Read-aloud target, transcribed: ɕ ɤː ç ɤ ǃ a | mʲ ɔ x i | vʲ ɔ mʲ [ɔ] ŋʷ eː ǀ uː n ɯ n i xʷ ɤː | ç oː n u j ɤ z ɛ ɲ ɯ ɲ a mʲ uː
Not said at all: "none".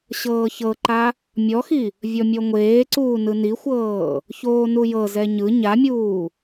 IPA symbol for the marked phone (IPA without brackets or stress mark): ɔ